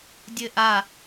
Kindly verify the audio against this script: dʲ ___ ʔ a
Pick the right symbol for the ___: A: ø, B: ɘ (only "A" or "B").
B